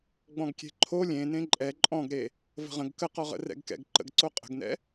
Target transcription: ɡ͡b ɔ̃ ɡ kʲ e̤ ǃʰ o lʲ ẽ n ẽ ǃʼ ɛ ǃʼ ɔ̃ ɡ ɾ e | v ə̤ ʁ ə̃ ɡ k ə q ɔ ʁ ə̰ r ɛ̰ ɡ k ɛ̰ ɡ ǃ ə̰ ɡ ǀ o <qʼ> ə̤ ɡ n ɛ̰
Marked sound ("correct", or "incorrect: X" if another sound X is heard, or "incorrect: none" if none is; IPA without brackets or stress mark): correct